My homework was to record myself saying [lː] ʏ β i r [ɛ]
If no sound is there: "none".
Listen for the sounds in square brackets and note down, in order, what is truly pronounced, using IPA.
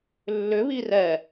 lː, ɛ

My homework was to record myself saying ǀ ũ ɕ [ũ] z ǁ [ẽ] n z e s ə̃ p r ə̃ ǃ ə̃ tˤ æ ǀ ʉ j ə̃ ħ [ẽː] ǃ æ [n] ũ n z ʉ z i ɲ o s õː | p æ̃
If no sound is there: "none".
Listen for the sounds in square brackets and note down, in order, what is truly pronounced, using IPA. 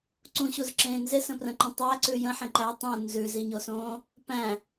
u, ẽː, ẽ, tˤ

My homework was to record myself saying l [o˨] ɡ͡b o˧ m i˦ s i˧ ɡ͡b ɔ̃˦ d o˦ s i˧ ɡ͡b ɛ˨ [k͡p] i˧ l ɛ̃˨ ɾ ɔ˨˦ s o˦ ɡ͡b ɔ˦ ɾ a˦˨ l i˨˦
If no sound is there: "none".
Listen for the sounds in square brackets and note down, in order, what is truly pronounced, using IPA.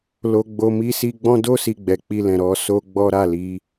o˧, k͡p

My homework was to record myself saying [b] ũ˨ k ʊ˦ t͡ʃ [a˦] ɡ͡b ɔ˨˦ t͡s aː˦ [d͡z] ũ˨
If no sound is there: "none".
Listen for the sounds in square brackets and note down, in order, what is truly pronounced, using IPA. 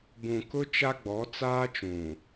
b, a˦, t͡ʃ

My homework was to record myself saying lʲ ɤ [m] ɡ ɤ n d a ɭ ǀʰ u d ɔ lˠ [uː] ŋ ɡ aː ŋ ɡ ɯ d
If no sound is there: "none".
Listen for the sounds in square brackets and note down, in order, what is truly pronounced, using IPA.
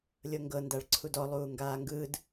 ŋ, uː

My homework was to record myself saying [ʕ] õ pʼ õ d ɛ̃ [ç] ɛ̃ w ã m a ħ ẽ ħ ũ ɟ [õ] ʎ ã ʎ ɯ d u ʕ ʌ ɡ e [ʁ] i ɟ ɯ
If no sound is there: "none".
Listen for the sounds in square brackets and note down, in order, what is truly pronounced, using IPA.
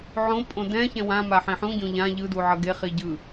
ʕ, ç, õ, χ

